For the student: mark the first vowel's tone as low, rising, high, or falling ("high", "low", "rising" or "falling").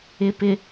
low